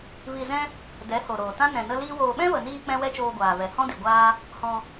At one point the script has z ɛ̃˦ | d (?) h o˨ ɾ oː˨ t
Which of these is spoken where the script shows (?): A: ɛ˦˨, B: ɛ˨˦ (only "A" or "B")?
B